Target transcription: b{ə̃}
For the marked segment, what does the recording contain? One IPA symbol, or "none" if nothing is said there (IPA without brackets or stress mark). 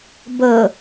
ə